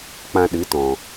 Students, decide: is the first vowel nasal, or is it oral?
nasal